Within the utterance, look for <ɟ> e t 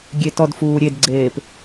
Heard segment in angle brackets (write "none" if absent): ɡʲ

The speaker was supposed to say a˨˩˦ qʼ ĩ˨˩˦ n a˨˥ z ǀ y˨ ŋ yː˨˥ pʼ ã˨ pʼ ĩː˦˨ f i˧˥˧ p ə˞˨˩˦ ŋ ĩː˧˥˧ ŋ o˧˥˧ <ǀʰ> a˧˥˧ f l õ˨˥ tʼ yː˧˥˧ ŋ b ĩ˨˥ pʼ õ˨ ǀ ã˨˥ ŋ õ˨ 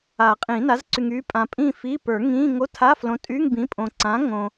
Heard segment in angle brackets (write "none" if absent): tʰ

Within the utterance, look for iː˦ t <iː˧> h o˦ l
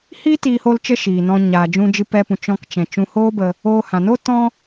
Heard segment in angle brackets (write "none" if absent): iː˧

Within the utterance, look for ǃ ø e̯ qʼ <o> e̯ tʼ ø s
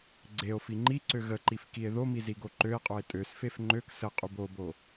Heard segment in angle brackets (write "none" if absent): o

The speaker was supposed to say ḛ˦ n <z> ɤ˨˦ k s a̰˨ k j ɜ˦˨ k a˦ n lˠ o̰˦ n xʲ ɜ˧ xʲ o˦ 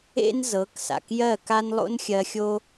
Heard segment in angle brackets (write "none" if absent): z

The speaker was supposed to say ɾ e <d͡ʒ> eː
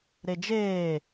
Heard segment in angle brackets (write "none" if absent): d͡ʒ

